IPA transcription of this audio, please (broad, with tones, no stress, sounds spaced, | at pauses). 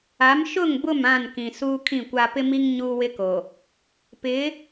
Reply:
a˨˦ m ʃ ʊ˦˨ ŋ b ʊ˦˨ m ã˦˨ n k ĩ˨ s uː˦ kʰ ĩ˦˨ kʷ a˦ p ɪ˦ m i˦ ŋ ɲ uː˦ w ɪ˦ k o˨ | p ɪ˨˦